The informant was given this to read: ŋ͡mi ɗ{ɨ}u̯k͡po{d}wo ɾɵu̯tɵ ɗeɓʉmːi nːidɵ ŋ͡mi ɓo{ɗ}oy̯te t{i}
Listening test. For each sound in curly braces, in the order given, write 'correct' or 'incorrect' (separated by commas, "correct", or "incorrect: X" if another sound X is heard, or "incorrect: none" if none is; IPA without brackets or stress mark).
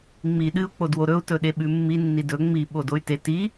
correct, correct, incorrect: d, correct